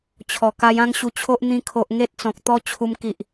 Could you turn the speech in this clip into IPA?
t͡ɕʰ ɔ˨˩ k a˧ j ã˦ ŋ ɕ u˧ t͡ɕʰ o˦ ʔ n̪ ĩ˧ kʰ o˨ ʔ ŋ e˦ t̚ t͡s ɔ̃˨ k̚ t̪ ɔ˦ t͡ɕʰ u˧ m k i˨ ʔ

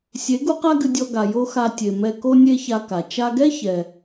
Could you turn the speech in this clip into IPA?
sʲ e˨˦ ɡ u˦ q a˦ ɡ ɨ˧ dʲ ɔ˧ ɡ a˨ j o˦ x a˧ tʲ e˨ m ɛ˧ k o˦ nʲ e˦ ç a˧ k a˨ t͡ʃ a˧ ɡ ɛ˦ ç ɛ˨

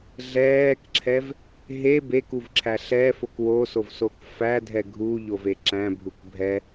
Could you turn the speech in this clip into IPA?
ɮ ɛː k ǁʰ ɛ v | ɦ e b e k u v ǁʰ æ ɬ ɛ f o k w o s o v s o k f æ dʱ ɛ ɡʱ u ʎ o v e ǁ æ̃ bʱ u k bʱ ɛ

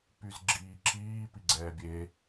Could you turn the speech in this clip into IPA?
p y z ɡ͡ǁ iː ǁ iː p i ɡ͡ǀ ɛː bʲ e

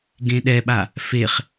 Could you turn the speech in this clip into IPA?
ɡ ẽ ɗ ɛ ɓ a | f e χ

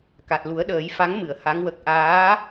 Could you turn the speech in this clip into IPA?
k a˨˩ t̚ l u˨˩˦ ə̯ ɗ əː˨˩˦ j f a˧˥ ŋ m ɨ˨˩˨ ə̯ h a˧˥ ŋ w ə˦˥ k̚ ʔ aː˧˥

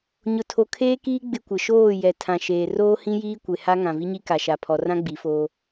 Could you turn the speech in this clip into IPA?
ɲ ʊ˨ tʰ o˨ kʰ eː˦ k iː˦ ɡ͡b ɪ˦ kʷ ɪ˨ ʃ oː˦˨ j ɛ˨ tʰ ã˨ ʃ eː˨ r oː˦ h ĩ˦ j iː˦ kʷ e˨ h a˦ ŋ ã˨ v i˦ ɲ i˦ k a˨ ʃ a˨ pʰ ɔ˨ r ã˦ ɡ͡b i˨˦ f oː˦

